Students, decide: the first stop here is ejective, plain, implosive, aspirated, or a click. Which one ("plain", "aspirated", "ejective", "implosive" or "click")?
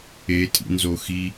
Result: ejective